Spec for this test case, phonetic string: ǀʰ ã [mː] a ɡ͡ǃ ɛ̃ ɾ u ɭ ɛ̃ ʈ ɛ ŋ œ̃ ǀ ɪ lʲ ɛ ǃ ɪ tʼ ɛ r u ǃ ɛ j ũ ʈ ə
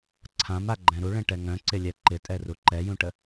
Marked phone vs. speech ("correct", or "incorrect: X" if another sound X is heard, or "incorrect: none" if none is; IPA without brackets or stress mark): incorrect: m